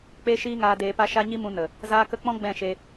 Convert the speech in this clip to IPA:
k͡p e˦ ʃ iː˦ ŋ aː˧ d eː˧ p a˦ ʃ a˦ ɲ i˦ m ũ˧ n ə˨ | z aː˧ k ə˧ k͡p ɔ̃˦ ɡ͡b ɛ̃˦˨ ʃ e˧

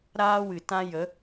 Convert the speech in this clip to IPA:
ɾ aː˦ w ɨ˨ t ã˦ j ə˨˦

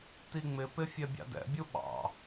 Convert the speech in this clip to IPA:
t i ŋ͡m ɪ p ɪ fʲ ɛ bʲ ɑ̰ d ɛ̰ bʲ u ɓ ɑ̰

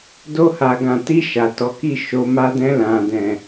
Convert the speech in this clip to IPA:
d o˧ h a˨ ɡ ã˨ t i˧ ʃ a˨ t ɔ˨˦ k i˦˨ ʃ o˧ m a˧ d ɛ̃˧ l ã˨ d ɛ̃˨

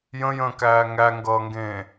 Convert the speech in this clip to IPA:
j ə̃ j ə̃ː k æː ŋ æ ŋ ɡ ʌː ŋ ɡ ẽː

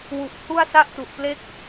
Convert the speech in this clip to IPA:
w u˨˩ ʔ h u˥˩ a̯ s a˥˩ ʔ t u˨˩ ʔ p l e˥˩ k̚

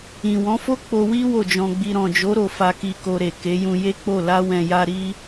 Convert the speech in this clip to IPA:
ĩ˨ w ɔ̃˨˦ f o˦ k͡p o˧ w i˦ w o˦˨ d͡ʒ ɔ̃˧ ɡ͡b i˧ ɾ ɔ̃˨ d͡ʒ o˨˦ ɾ o˧ f a˧ k i˧ k o˧ ɾ e˨ k e˨˦ j ũ˧ j e˦ k͡p o˦˨ l a˧ w ɛ̃˨ j a˧ ɾ i˦

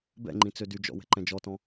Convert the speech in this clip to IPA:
b ɛ̰ ŋ͡ǃ ĩ t͡s ø d y d͡ʒ ɔ̰ w ɛ̤ ǃ ɛ̃ d͡ʒ ɔ t ɔ̃

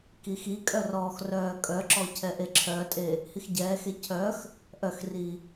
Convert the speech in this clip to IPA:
k i x i kʼ œ r ɔː x r œː kʼ œ ǁ ɔ cʰ ɛ ʔ e ǁʰ œ tʼ e | h i x ɟ ɛː x e cʰ œ x | ʔ œ x r i

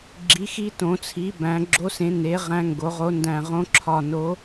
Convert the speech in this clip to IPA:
ɡ͡ǁ i˩˥ x i˧˥ t õ˨˩˦ t͡sʰ i˩˥ b æ̃˩˥ ɡ͡ǁ o˧˥ s ẽ˩˥ n e˩˥ ʁ æ̃˧˥ ŋ ɡ o˩˥ ʁ o˧˥ n d æ̃˦˨ ʁ õ˧˥ ǁʰ ɒ˦˨ n o˧˥

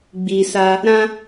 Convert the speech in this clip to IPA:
ɡ͡b i˨ s a˧ | ɾ ã˦

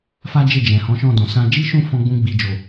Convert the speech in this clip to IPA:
f a˦ d͡ʒ e˦˨ d͡ʒ ɛ̃˨ h ɔ̃˨˦ ʃ ɔ̃˦˨ d ɔ̃˨ s ã˧ d͡ʒ i˦ ʃ ũ˦˨ f ɔ̃˧ ɡ͡b ũ˧ ɡ͡b i˨ d͡ʒ o˨

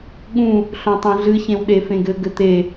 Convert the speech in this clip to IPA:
ɠ ũ | ɬ õ tˤ ũ ɮ ɨ ç ẽ w ɗ e f ẽ ɡ ɘ ɡ ɘ t̪ e

